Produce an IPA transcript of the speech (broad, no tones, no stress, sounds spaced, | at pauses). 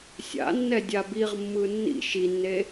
sʲ a̰ nː ɛ dʲ a b i ʁ mː ɯ nː ḭ ʃ i nː e